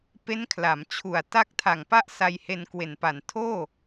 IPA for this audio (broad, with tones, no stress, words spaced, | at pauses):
pe˦˥nkʰla˩˦mt͡ɕʰu˨˩a̯ ta˦˥k̚tʰa˨˩ŋ pa˥˩ʔ sa˧jhe˧n kwe˨˩npa˨˩n tʰoː˥˩